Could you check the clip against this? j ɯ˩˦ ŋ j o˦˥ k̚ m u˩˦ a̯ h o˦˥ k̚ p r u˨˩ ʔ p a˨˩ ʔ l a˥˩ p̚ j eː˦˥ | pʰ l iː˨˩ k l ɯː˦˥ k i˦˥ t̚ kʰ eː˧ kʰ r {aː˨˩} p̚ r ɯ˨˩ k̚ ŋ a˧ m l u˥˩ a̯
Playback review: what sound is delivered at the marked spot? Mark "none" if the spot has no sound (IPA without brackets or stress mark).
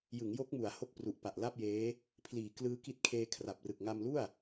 a˨˩